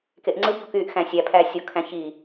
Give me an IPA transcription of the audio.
k e ʔ ŋ͡ǀ ɯ b ʎ o k y ʔ x æ̃ sʲ æ pʰ æ sʲ o kʰ æ̃ ç i

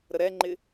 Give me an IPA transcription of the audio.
ɾ ə ɾ ɛ ŋ͡ǃ ɪ

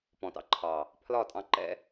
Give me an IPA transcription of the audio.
p ɔ̃˨ t ɑ̰˧ ǃʰ ɑ˨ | pʰ l ɒ˦˨ tʼ ɑ̃˧ ǃ ɛ̰˦

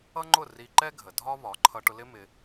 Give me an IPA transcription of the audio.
ʌ˦ ŋ͡ǃ ʊ˦˨ r i˧ ǃ ɛ˦ ɡʱ ə˨ dʱ ɒ˦ β ɒ˨˦ ǃʰ ʌ˧ ʈ ʊ˧ l ɪ˦ m ɪ˧

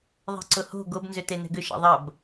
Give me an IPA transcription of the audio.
ðˤ ɛ̤ ǀ ʊ h o̤ ɡ o b n z ʏ t e n ɛ̤ ɡ ʏ ʃ ɛ̰ ðˤ ɐ b

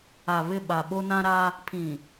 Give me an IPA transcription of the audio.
a˨ β ɪ˦˨ ɓ a˨ ɓ o˦ n ã˦ ɾ a˦ | pʰ ĩ˨

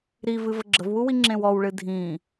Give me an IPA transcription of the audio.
ɾ i v ɨ v ə ɡ͡ǁ ə v w u w i ŋ͡ǁ ẽ w ɔ w ɭ ɨ dʱ ĩ

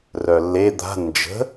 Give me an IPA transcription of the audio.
r œ lː e d̪ a̤ n d͡ʒ ə̤

